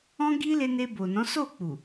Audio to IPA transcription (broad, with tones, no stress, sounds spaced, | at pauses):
ɔ̃˦ ɡ i˦ l e˧ n e˧ b o˨ n ɔ̃˨˦ s o˦˨ k͡p u˨